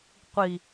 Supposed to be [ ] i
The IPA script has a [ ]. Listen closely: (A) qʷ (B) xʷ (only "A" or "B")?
A